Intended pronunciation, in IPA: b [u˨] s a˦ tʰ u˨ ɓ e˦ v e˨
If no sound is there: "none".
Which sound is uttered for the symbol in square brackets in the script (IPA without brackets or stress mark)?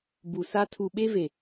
u˨